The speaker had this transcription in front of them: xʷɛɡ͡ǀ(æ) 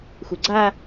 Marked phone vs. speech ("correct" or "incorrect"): incorrect